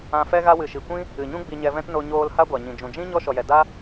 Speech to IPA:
ã˧ f ɛ˦ ɣ a˧ w ɨ˨ ʃ i˨ kʷ ĩ˦ | ɨ˨ ɲ ũ˦ ɡ͡b i˧ ɲ ɛ˧ v ɛ̃˦ t n o˧ ɲ oː˧ l h a˦ ɡʷ a˨ ɲ ĩ˨ d͡ʒ ũ˨ d͡ʒ ĩ˦ ɲ ɔ˦ ʃ ɔ˨ j ɛ˨ d a˦

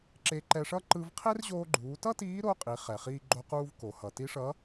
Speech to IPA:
ǁ e˧ ǃ ɛ˧ ʂ ʌ˥ ǃ ɯ˧ v qʰ e˥ r ʑ oː˧ ɡ͡ǃ uː˩˧ t ʌ˥ t iː˧˥ ɾ o˧˥ qʼ i˩˧ χ ɛ˩ χ iː˧ ɡ͡ǃ o˧ q uː˥ v k o˩ h ʌ˩ t i˧˥ ʂ ʌː˧˥

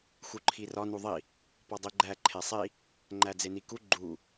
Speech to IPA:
x u ǃʰ i r ɒ n u ðˤ i | p ɒ dˤ i ɡ͡ǃ æ ǃʰ e sˤ i | ŋ͡ǃ æ d͡z e n i k u ɡ͡ǃ u

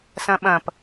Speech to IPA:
s ɐ̃ ɓ ɐ̃ p

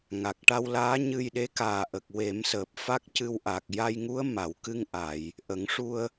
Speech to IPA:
ŋ a˨˩ k̚ ʈ a˧ w l aː˧˥ ɲ ɨ˧ j ɗ e˧˥ k aː˨˩ ʔ ə˨˩ k̚ w e˨˩˦ m s əː˨˩ p̚ f a˦˥ k̚ c ɨ˧ w ʔ a˨˩ k̚ j a˧ j ŋ u˧˥ ə̯ m a˨˩˨ w k ɨ˧ ŋ ʔ a˨˩˨ j | ʔ ə˨˩˦ ŋ ʂ u˧ ə̯

